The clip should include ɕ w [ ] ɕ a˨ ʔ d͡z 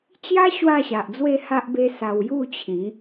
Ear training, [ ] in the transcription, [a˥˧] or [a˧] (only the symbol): a˥˧